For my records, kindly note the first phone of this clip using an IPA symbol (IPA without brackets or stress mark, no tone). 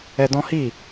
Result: ɛ